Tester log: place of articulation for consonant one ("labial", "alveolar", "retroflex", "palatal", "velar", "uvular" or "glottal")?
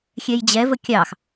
velar